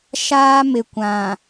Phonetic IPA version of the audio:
ʃ aː˦ m ɪ˨ kʷ ã˨

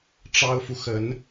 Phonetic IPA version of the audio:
ʈ͡ʂ ɑ˥ ʊ̯ f u˨ x ə˧˥ n

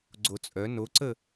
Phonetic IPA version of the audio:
ɡ͡ǀ o t͡sʼ œ n o ǀ ə

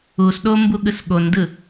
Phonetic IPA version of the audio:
u s ɗ o m b u ɠ ɯ s ɠ o n d ɯ

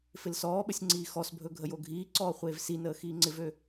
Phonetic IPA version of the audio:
f ɪ l s ɔː ɓ ə sʲ ŋ͡ǀ iː x ɔ s bʱ ɵ ɡʱ ə j o ɡʱ iː ǀ ɔː χʷ eː v s i n əː x iː ŋ͡ǀ ɪ v ø

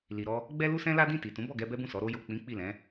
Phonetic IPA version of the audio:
l i˨ ɾ ɔ˧ | ɡ͡b ɛ˦ l u˦ s ɛ̃˦ l a˦ d ĩ˦˨ t i˨ t ũ˨˦ b ɔ˦˨ ɡ ɛ˧ b ɛ˦ b ũ˦˨ s ɔ˨˦ ɾ o˧ j o˨ k͡p ĩ˨˦ k͡p i˦˨ l ɛ̃˨˦

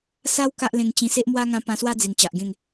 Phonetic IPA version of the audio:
s a˦ w k a˦ ʔ l ẽ˧ ŋ t͡ɕ ĩ˧ s e˦ ʔ m w a˦ ŋ ã˧ p ã˧ s w a˦ d͡z i˨˩ n t͡ɕ a˨ ʔ ɡ ẽ˥˧ ŋ

